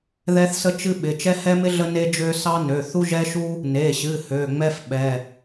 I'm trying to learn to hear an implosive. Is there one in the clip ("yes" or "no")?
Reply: yes